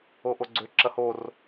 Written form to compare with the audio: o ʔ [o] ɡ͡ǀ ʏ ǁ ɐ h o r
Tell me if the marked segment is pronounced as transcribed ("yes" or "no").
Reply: yes